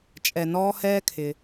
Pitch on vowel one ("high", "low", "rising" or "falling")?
low